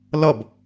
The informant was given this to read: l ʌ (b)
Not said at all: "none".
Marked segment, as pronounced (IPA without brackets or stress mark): b